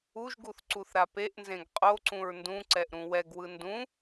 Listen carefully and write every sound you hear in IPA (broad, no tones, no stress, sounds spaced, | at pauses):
u ʒ ɡ u θ ǀ u θ ɾ a p e ʔ n z ẽ ɡ qʼ o ǀ ũ ɹ n d ũ ǀ ɛ ʔ ɾ ũ w ɛ ɡ w ɯ n d ũ